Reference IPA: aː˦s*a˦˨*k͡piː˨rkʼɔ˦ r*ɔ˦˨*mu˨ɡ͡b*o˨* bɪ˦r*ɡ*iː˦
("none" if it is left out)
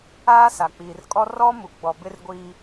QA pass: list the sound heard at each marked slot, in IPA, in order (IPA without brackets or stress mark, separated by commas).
a˨, ɔ˦, ɔ˨, ɡʷ